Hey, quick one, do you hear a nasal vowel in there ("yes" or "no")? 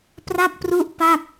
no